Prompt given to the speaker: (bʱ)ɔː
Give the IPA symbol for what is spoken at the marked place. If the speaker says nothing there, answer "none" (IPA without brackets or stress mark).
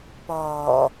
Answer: p